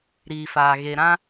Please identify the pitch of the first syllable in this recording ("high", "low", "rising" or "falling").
low